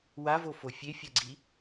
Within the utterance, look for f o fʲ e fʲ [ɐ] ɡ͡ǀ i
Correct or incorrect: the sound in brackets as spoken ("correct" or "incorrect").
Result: correct